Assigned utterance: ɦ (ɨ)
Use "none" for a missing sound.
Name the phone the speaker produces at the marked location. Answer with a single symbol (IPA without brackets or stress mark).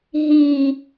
i